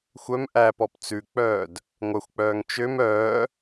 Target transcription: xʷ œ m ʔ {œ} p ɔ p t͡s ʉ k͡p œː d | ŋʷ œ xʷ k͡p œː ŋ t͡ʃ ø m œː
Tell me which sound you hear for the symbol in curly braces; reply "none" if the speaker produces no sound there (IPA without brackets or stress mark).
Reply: æ